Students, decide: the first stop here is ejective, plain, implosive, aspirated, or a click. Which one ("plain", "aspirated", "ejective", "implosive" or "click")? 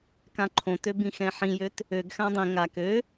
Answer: plain